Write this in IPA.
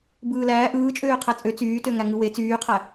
b ɯː l æː ʔ ɯː t͡ʃʼ øː qʰ æ t͡sʼ ø t͡s yː t ø ŋ æ ŋ ɯ w e t͡s yː qʰ æ

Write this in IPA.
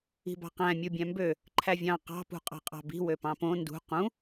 i̤ b ɑ̤ q æ̃ mʲ u bʲ æ̃ m b ø | ǃʰ æ vʲ ɑ̃ q ɑ̤ p ṳ qʼ ɑ̤ qʼ ɑ̤ b i̤ w ø p ɑ̃ p õ n d ṳ q ũ

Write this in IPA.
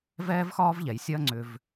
v ɛː˥ v x ɒː˥ v ʎ ɛ˨˩ j sʲ ɐː˥ ŋ͡ǀ ʏ˧ v

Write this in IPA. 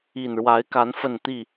i˨˩ n ɻ w a˨˦ ɪ̯ k a˨˦ n f ə˥˨ n t̪ i˥˨

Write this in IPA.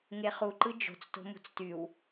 ŋ e χ u ǃ ɯ d͡ʒ o̤ t͡s t o̤ m ṳ t͡s t y w

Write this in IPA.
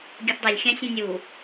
ɡʲ ɐ θ dˤ ɐ lʲ xʲ ã sʲ ɐ̃ nʲ u

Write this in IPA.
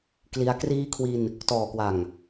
k l i˦˥ a̯ k r iː˦˥ kʰ w i˧ n | t ɔː˨˩ k w a˨˩ ŋ

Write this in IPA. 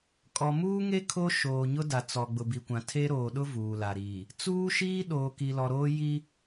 kʼ ɔ˨ m uː˦ ŋ e˦ kʰ o˦ ʃ oː˨ ɲ ʊ˦ d a˨ t͡s ɔ˨ ɡ͡b ʊ˨ b i˨ kʷ ã˨ tʰ e˦ ɾ oː˨ ɗ ʊ˦ v uː˨ l a˨ ɾ iː˨ | t͡s uː˦ ʃ iː˦ ɗ oː˨ k i˨ l ɔ˨ ɾ oː˦ j i˦

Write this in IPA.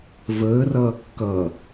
v əː r ʌː kː ʌ

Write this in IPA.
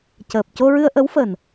c əː˨˩ p̚ c o˧ ɹ ɨ˧ ə̯ ʔ ə˧˥ w f əː˨˩ n

